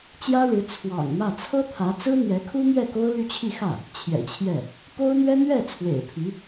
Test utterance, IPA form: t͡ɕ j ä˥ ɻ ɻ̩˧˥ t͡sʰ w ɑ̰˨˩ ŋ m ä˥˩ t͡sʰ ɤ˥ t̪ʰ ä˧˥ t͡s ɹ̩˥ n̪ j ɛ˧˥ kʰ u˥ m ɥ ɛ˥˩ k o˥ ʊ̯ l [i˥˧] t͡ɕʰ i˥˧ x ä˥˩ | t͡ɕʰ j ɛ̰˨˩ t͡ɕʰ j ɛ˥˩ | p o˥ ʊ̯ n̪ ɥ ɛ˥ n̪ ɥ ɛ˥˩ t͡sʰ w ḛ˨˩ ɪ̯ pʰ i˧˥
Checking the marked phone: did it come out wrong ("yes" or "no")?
yes